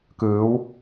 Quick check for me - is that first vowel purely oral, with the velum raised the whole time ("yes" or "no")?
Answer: yes